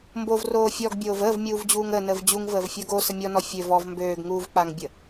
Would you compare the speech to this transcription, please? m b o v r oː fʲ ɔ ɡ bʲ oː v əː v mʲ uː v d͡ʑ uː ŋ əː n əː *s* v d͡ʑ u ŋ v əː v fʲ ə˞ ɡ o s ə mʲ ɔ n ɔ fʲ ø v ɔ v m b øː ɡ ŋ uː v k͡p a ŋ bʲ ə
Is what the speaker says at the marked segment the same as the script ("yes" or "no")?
no